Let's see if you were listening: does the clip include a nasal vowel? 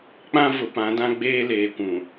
yes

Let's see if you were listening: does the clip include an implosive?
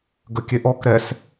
no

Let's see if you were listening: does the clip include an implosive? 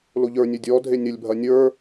no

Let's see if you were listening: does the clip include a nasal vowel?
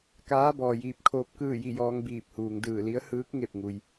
no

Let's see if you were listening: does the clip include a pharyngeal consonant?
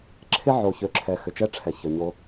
yes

